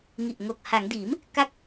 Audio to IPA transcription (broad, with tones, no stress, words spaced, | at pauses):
ŋi˨˩ʔŋo˨˩k̚ ha˩˦ŋ diː˩˦m | ka˦˥k̚